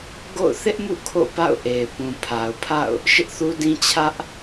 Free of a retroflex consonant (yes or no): yes